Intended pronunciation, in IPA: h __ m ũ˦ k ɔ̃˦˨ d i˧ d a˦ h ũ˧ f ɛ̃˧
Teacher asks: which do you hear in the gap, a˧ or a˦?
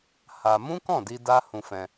a˧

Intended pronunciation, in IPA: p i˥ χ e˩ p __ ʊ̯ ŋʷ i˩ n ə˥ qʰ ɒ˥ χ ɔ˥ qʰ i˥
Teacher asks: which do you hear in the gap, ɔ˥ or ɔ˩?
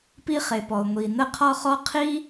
ɔ˩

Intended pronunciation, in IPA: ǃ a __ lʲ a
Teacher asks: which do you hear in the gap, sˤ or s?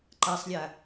sˤ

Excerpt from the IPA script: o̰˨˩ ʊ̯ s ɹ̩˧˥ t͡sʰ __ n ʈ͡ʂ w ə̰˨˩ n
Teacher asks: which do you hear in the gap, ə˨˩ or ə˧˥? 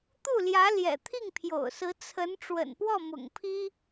ə˧˥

